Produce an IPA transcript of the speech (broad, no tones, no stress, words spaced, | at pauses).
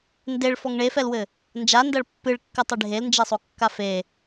ndeɭfɔŋ ɳefɛlwɘ | nd͡ʒandɐɭ pːɨɭkːɨtˤi ɖʱelnd͡ʒesˤokːa fe